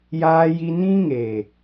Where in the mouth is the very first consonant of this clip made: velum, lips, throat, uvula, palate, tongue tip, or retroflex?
palate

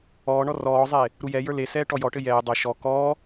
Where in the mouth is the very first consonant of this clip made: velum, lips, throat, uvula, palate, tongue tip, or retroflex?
retroflex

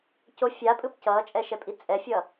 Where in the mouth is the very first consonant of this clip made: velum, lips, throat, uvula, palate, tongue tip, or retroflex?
palate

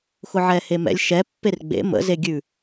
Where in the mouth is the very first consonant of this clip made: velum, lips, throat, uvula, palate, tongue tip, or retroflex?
velum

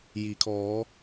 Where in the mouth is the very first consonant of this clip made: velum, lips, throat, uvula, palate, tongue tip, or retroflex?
palate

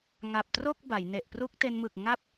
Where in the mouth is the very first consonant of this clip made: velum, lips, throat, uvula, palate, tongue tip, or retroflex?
velum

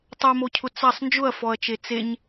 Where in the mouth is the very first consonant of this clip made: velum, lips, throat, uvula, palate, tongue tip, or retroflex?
tongue tip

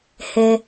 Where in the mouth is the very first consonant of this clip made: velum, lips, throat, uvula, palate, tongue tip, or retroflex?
throat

